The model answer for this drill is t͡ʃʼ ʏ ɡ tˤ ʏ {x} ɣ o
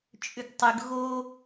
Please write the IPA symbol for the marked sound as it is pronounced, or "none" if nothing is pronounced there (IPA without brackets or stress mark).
ɡ